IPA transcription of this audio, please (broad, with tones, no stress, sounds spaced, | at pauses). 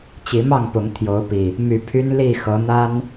t͡ɕ i˨˦ m ɑ˥˨ ŋ p ʊ˨˦ ŋ t̪ʰ j o˨˦ ʊ̯ p i˨˩ | m y˨˦ pʰ y˦ n l i˥˨ x ɤ˨˦ n̪ a˦ n